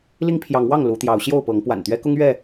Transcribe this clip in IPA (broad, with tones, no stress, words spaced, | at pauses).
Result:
li˦ŋpʰjɑ˨˦ŋwɑ˥˨ŋ lu˨˦t̪jɑ˨˦ʊ̯ ɕjo˥˨ʊ̯pɤ˨˦ŋ pwa̰˨˩nt̪ɥɛ˦kʊ˦ŋ ɥɛ˥˨